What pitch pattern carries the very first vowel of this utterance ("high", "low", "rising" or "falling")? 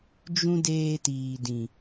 high